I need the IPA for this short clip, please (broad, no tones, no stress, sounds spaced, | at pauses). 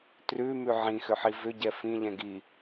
t r ʉ m ʉ ʕ ĩ x ʏ ħ i v ʏ ɟ ɛ f ĩ ʎ ɛ̃ ɡ i